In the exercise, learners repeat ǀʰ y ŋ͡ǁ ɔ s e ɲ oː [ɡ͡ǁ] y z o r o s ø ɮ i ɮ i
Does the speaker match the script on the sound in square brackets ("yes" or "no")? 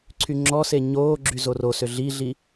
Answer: yes